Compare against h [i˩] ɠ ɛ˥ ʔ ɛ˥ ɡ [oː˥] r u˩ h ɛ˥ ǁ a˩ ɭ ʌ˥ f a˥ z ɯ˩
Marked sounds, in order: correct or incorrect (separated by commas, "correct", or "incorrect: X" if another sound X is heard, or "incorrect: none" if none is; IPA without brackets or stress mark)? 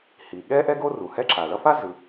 correct, incorrect: o˥